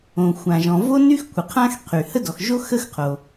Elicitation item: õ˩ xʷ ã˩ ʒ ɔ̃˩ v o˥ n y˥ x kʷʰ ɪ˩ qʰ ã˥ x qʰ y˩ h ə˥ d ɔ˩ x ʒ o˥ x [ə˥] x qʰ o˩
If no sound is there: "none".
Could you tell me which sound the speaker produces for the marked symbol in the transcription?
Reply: ə˥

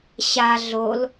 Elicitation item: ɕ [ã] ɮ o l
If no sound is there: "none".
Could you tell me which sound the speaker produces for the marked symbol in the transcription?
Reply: a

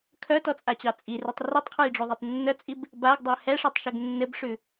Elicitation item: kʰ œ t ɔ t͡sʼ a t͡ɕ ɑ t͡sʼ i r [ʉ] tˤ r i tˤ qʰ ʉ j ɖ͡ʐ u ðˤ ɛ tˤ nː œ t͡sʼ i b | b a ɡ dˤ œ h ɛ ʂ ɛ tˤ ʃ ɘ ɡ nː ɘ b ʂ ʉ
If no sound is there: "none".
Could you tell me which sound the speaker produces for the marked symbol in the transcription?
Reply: ʉ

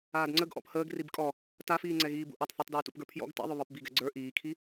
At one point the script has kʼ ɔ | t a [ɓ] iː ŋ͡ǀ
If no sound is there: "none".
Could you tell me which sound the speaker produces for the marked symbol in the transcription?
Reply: f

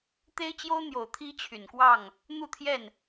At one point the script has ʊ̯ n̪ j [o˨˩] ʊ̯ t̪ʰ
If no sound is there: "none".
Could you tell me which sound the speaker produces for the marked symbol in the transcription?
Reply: o˨˩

